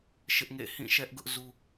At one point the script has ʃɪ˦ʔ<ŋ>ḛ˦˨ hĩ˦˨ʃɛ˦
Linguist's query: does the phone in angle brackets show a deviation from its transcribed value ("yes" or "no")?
no